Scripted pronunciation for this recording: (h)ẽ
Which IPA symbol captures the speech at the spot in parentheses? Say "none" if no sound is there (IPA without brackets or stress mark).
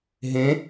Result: ɦ